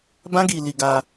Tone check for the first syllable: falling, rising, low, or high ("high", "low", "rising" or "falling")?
high